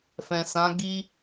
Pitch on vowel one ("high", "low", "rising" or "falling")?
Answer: low